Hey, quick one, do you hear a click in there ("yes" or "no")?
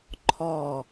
yes